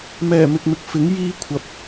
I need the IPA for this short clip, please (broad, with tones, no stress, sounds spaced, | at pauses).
m ɛː˨˩ m ɪ˨ k̚ m ɪ˨ k̚ f ɪ˨˥ ŋ j iː˥ kʷʰ ɐ˨ p̚